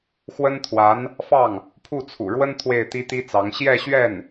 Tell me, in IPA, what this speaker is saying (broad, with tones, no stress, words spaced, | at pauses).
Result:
xwə˥nt̪ʰwa˧˥n | fɑ˥˩ŋ | pʰu˥˩t͡sʰṵ˨˩ɻwə˥n t̪ʰwe˥˩ɪ̯t̪i˥t̪i˥t͡sɑ˧˥ŋ ɕjɛ˥˧ɕɥɛ˥˩n